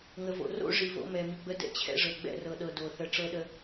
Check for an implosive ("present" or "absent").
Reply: present